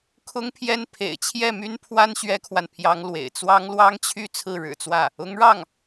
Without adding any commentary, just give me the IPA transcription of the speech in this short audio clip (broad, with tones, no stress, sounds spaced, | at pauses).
kʰ ʊ˥ ŋ pʰ j ɛ˥˩ n pʰ ḛ˨˩ ɪ̯ t͡ɕʰ j ɛ˥˩ m y˥ n pʰ w a˥ n ɕ ɥ ɛ˥ kʰ w a˨ n pʰ j ɑ˥ ŋ l w ḛ˨˩ ɪ̯ t͡s w ɑ˥ ŋ l w ɑ˥ ŋ t͡ɕʰ y˥˧ t͡sʰ ɹ̩˥˩ ɻ ɻ̩˨˩ t͡s w ä˥˩ | ʊ˧˥ ŋ ɻ ɑ˥˩ ŋ